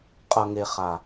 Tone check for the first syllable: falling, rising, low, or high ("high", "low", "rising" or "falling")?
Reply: low